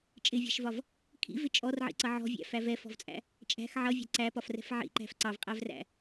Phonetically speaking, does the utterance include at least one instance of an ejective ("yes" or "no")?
yes